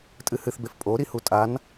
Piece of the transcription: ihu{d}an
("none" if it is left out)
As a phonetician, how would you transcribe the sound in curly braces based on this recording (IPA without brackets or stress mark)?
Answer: tʼ